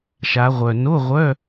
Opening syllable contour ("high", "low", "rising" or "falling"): rising